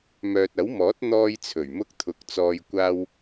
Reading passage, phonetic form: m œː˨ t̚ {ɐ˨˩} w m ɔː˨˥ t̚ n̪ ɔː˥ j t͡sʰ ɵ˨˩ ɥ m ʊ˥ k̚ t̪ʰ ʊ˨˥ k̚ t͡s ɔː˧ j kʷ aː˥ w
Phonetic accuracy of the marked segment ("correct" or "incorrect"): incorrect